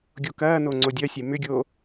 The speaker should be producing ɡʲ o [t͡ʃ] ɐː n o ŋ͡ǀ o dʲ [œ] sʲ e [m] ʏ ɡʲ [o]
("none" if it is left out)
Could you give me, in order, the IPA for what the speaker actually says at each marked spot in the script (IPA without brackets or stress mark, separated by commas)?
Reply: k, œ, m, oː